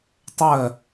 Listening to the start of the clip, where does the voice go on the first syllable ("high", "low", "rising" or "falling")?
falling